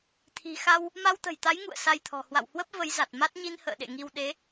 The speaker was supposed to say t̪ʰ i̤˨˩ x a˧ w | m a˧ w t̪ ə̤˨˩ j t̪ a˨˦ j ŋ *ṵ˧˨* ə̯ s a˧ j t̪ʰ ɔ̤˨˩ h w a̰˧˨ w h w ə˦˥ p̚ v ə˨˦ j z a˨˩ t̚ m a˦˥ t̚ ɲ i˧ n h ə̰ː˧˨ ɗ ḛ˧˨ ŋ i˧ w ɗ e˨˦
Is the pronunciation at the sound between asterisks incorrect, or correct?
correct